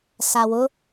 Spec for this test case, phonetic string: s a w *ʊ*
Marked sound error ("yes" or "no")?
no